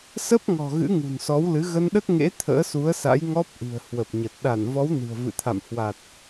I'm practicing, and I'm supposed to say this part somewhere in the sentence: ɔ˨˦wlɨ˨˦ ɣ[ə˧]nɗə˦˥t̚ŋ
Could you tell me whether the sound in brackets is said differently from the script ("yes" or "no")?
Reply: no